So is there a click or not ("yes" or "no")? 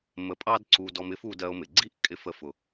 yes